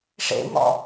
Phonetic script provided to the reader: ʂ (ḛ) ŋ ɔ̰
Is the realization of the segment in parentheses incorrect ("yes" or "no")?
no